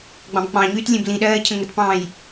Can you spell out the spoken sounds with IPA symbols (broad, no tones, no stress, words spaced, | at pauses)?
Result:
ɡ͡bɑ̃bk͡pɑ̃ɲyːt lʲẽblĩɗɜː cʰə̃ŋətpɑ̃ːj